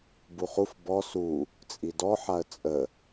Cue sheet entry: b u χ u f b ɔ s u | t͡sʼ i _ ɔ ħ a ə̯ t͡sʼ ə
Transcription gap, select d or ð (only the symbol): d